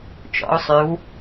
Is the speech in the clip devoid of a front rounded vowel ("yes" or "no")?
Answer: no